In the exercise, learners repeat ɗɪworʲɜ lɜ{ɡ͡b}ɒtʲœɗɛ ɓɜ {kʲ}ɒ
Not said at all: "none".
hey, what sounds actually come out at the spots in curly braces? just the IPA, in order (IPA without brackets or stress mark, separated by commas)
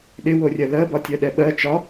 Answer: b, t͡ʃ